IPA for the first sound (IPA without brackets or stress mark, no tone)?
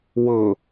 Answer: w